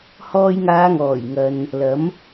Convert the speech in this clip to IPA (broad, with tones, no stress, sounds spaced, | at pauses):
h ɔː˧ j ŋ aː˨˧ ŋ ɔː˨˩ j ŋ ɐ˨ n | l ɐ˨˥ m